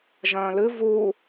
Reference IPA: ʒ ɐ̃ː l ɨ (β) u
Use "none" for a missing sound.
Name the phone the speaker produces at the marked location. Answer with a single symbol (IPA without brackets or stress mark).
v